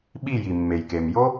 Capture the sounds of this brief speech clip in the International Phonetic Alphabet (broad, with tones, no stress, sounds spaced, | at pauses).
ɓ i˦˨ j i˨ mː e˨ j k e˨ m j o˦